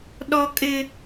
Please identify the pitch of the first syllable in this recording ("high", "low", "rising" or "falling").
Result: high